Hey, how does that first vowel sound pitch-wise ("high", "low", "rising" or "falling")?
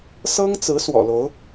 high